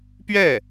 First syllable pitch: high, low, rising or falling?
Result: falling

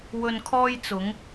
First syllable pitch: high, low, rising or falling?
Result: low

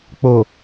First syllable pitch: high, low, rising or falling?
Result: low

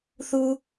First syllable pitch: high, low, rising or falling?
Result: high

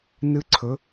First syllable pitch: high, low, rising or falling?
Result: falling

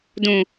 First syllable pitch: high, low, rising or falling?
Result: low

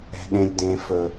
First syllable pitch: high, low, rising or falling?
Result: low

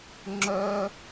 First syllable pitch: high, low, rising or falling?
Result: high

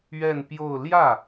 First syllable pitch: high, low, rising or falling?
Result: falling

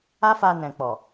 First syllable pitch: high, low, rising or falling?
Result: high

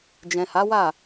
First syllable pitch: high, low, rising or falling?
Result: low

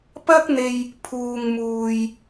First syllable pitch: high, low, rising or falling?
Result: high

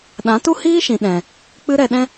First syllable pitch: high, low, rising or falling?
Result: rising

